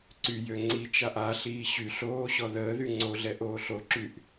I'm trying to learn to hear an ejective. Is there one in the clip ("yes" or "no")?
no